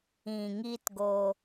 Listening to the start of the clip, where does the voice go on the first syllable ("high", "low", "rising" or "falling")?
low